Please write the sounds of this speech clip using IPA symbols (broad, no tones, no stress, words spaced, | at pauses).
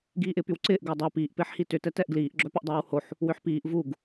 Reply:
ɡiːʔɪːpywǀɪːʔ ɡɛːdˤœ piːʔ pɪːħhitʏ tɛtɛʔɡliːʔ ɡ͡ǁœpʏʔdˤɛːwhoħ | wʏħpiːʔ vuɡ